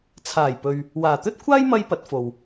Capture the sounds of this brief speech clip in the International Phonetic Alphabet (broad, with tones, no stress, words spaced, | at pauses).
t͡sʰaː˨˩jpɵ˨ɥ | waː˨˩t̪ɵ˥t̚kʷʰaː˥j mɐ˥jpɐ˨˥t̚fo˨w